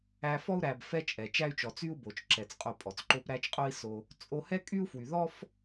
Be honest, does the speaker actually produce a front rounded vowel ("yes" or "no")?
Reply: yes